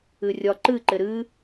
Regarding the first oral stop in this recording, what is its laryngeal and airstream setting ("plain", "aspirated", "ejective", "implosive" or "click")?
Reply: click